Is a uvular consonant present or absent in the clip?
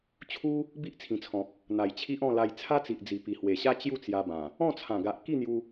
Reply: absent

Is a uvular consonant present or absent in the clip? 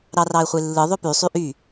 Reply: present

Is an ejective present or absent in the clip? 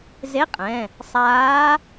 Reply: present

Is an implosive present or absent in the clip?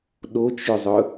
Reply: present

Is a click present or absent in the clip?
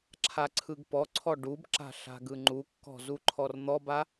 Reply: present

